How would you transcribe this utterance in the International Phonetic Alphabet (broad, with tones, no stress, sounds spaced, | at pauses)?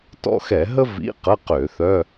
t ɔ̰˦˨ x ɛ˧˩˧ ɦ ə˥ v ḭ˧˥˧ q ə˧˥˧ q ø˧˩˧ θ œ˧˥˧